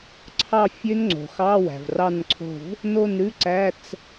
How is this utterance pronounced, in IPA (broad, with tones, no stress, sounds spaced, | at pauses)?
ǀʰ ɑ˦˨ fʲ ø˦˥ n ŋ͡ǀ o̤˩ x ɑ˧˥˧ w æ̤˩ v r ɑ˦˨ n ǀʰ o̤˦˨ v | n o˦˨ n ɾ ʉ˧˥˧ ǀ æ˧˥˧ t͡s